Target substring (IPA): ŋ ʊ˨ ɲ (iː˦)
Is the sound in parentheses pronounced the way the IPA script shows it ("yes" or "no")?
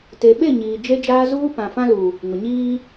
yes